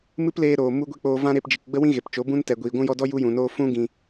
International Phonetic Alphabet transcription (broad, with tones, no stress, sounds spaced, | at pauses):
m ɨ˦ p l eː˧ ɾ oː˨ m u˦ ɡʷ e˦ k͡p oː˧ v ã˦ ɾ e˧ p d͡ʒ i˨ k ɡ͡b ə˦ w ĩ˦ ɣ e˨ p t͡ʃ o˨˦ b ũ˦ n t ɛ˨ ɡʷ iː˨ ɡʷ ũ˧ j ɔ˧ d ɔ˦ j u˦ j ũ˨ n oː˦ f ũ˦ ɡ ĩ˨